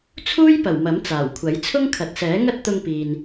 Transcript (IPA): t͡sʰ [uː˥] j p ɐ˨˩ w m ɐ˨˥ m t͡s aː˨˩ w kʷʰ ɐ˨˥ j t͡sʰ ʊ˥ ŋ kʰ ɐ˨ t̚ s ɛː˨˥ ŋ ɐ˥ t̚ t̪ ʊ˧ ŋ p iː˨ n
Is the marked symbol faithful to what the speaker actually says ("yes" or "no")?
yes